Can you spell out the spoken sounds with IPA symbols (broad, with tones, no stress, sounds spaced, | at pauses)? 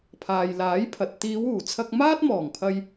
pʰ aː˨ j l aː˨˥ j pʰ ɐ˨ t̚ t̪ iː˨˧ w uː˨˩ t͡sʰ ɐ˧ k̚ m aː˥ t̚ m ɔː˨˩ ŋ pʰ ɐ˧ j